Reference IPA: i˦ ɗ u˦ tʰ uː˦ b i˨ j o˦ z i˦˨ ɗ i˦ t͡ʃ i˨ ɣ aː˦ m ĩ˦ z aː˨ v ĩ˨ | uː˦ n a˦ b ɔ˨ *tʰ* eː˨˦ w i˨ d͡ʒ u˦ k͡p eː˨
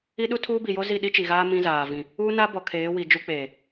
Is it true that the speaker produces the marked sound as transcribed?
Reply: no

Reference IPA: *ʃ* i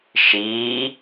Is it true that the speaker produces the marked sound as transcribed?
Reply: yes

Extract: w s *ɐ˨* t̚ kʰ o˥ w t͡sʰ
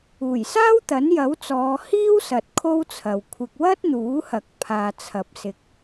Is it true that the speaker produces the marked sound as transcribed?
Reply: yes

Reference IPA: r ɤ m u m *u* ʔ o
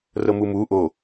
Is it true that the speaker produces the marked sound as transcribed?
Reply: yes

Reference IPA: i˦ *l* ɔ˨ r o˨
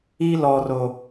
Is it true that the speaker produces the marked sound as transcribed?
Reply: yes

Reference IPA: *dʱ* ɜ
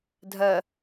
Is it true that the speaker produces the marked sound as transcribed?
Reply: yes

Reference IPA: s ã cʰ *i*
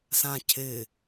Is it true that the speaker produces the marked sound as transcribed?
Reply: no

